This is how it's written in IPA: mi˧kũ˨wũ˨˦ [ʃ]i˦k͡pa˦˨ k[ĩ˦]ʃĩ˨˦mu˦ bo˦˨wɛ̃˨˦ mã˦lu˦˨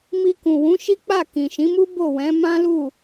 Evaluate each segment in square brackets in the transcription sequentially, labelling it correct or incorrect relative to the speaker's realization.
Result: correct, incorrect

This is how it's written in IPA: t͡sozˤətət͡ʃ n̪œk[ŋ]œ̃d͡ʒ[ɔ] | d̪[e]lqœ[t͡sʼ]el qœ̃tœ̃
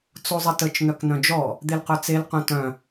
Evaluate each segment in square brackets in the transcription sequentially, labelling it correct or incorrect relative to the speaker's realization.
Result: incorrect, correct, correct, incorrect

